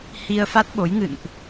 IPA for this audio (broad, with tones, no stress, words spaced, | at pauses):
hi˧ə̯ fa˦˥t̚ɓo˨˦j ŋɨ̰˧˨nʔ